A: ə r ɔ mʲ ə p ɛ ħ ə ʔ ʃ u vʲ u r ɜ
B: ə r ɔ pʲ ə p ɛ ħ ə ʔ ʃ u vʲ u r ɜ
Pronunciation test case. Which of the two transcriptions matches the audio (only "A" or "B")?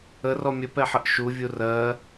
A